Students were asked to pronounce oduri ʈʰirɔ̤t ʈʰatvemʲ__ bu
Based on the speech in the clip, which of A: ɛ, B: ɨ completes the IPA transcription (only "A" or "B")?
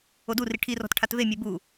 A